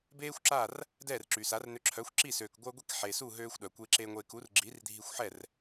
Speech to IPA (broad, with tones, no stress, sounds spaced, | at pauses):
b eː˥ xʷ ǁ a˥˩ r | d ɛː˥˩ r ǁ y˩ s a˩˥ r n ø˧ ǁʰ œ˩˥ xʷ ǁ i˥˩ s øː˩ k ɡʷ œ˧ ɡʷ i˧ k ħ e˩ s u˥˩ ɦ øː˧ xʷ ɗ œ˩ kʷ e˧ ǁ e˧ ŋʷ e˧ k u˩˥ r ɡ͡ǁ i˩˥ r dʱ i˧ xʷ ħ ɛ˥˩ r